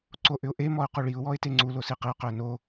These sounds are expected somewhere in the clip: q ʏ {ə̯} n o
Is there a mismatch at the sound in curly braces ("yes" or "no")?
no